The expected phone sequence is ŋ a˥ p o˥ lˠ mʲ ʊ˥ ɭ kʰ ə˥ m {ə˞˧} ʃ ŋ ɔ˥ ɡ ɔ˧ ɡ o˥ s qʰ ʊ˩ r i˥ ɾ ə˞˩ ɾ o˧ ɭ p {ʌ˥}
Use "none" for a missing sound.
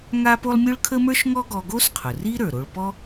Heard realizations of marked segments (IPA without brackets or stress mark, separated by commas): ə˞˥, ɔ˥